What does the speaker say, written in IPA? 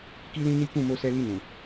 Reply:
ki˦lĩ˦ni˦ kũ˦˨mo˧sɛ˧li˧ nũ˨

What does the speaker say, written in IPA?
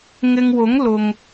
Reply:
ŋɪ˧ŋwʊ˨˥ŋ lʊ˨ŋ

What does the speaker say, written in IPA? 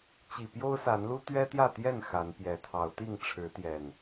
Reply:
t͡ɕi˨˩pjo˦ʊ̯sa˨˦nlu˦ t̪ɥɛ˦t̪jä˥˨ t̪jɛ˥˨n xa˨˦npjɛ˨˦t̪ʰɑ˨˦ʊ̯ t̪i˥˨ŋʈ͡ʂʰɻ̩˨˦t̪jɛ˨˩n

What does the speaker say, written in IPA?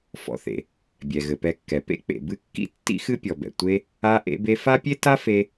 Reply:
fɔ̰˨θḛ˩ | bʲɛ˩ ɣɘ˩pɛ˨kːɛ˩ pḛ˥ k͡pḛ˨ bɨ˦kːḭ˥ tːḭ˥xɨ˦pʲɔ˩bɛ̰˩ tʷe˦ | a˦ ʔḛ˦be˦ fa˥pʲe˥ta˥ fe˦

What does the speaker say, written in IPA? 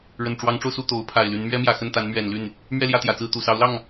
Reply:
ɻə˨˩n ʈ͡ʂwɑ˧˥ŋʈ͡ʂo˧ʊ̯su˥˩ t̪o˧˥ʊ̯pʰa˨˩ɪ̯ly˧˥n mɥɛ˥mjä˨˩xə˥˩n t̪a˧˥nmɥɛ˨˩nly˥˩n | mɥɛ˥˧ljä˥˩t̪jä˨˩t͡sɹ̩˥˩ t̪u˨˩sɑ˧˥ʊ̯lɑ˥˩ŋ

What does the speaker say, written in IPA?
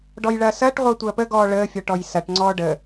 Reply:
ɖɔjɭɐːsɐːʈ ʁʷəːtʷɐːpə ɡɔːɭəː fʲɔʈɔjsɐʈ ŋ͡ǀɔːɖə

